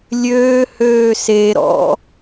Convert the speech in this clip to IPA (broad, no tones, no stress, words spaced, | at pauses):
lʲøː høːse ɾɔ̰